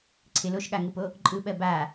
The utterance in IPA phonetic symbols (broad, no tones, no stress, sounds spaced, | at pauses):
ǀʰ ɪ l o ʃ ɠ a ŋ ɯ p o | ǃʼ ɯ ɓ ɜ b a